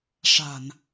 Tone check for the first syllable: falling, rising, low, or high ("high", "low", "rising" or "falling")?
low